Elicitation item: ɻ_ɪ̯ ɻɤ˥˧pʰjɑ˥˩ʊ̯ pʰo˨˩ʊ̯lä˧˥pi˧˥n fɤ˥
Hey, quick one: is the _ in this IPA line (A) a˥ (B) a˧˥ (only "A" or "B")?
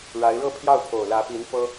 B